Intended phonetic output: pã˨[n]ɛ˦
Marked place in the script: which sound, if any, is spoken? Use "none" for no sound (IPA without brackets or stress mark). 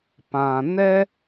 n